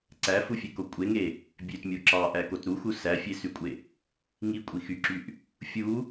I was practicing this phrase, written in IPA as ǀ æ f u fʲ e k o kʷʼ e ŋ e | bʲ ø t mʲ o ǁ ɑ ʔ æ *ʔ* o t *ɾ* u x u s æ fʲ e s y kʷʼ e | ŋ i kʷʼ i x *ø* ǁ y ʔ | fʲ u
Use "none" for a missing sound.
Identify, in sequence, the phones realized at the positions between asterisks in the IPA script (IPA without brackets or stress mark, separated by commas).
k, ɾ, y